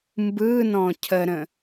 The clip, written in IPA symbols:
m b ɯː n ɔ̃ː cʰ ə ɾ ə̃

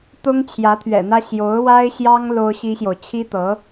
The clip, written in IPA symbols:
t̪ ʊ˥ ŋ t͡ɕʰ j ä˧˥ t̪ʰ ɥ ɛ̰˨˩ n̪ ä˥ ɕ j o˧˥ ʊ̯ w a˥ ɪ̯ ɕ j ɑ˥ ŋ l o˥ ʊ̯ ɕ i˥ ɕ j o˨ ʊ̯ t͡ɕʰ i˥ t̪ ɤ˧˥

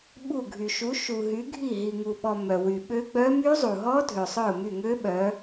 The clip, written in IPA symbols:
ɓ u˦˨ ɡʱ y˨ ʃ u˨˦ ʃ u˨ ɦ y˨˦ ɡʱ i˦˨ ɦ i˨ ŋ u˨ ɓ ɔ˨ m œ˨ w y˨ ɓ ø˦˥ ɡ͡b œ˦˥ m y˦˥ zˤ u˨ ɦ ɔ˦˥ dʱ ø˨ sˤ œ˦˨ ʊ̯ m y˦˨ ŋ ø˦˥ ɓ œ˨˦

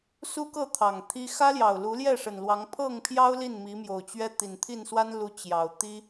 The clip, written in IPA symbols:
s u˦ k ɤ˥˨ t̪ʰ ɑ˨˩ ŋ t̪ʰ i˦ x ä˦ l j ɑ˨˩ ʊ̯ l u˨˦ l j ɛ˥˨ ʂ ə˨˩ n l w ɑ˨˦ ŋ pʰ ɤ˥˨ ŋ pʰ j ɑ˦ ʊ̯ l i˥˨ n m i˨˦ m j o˨˩ ʊ̯ t͡ɕ ɥ ɛ˦ t̪ i˨˩ n t̪ʰ i˥˨ n s w a˦ n l u˨˦ t͡ɕ j ɑ˨˩ ʊ̯ t̪ i˦

